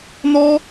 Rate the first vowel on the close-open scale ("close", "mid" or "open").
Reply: mid